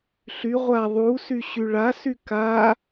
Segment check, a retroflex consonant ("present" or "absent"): present